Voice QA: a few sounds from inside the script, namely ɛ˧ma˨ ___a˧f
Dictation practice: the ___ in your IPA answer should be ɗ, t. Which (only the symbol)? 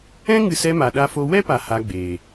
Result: ɗ